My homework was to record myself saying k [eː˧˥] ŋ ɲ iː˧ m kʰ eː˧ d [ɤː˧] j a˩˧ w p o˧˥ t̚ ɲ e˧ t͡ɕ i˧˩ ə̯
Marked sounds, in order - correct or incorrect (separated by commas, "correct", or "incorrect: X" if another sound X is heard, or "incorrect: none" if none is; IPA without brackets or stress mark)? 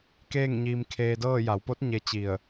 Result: incorrect: eː˥˨, incorrect: ɤː˥˨